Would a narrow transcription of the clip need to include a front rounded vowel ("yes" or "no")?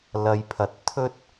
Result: no